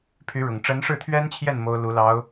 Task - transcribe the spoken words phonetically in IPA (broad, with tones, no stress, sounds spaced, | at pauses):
pʰ y˧˥ ɻ ʊ˨˩ ŋ ʈ͡ʂ ə˧˥ n ʂ ɻ̩˥˩ t̪ʰ ɥ ɛ˥ n t͡ɕʰ j ɛ˥˩ n m o˥ ʊ̯ l u˧˥ l ɑ˧˥ ʊ̯